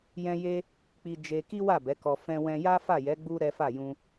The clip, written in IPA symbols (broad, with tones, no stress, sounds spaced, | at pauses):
j ɛ̃˦ j e˦ | k͡p i˧ d͡ʒ e˧ k i˦ w a˦˨ b ɛ˨˦ k ɔ˧ f ɛ̃˧ w ɛ̃˧ j a˦ f a˦˨ j ɛ˨˦ ɡ͡b u˦ ɾ ɛ˦ f a˦˨ j ũ˧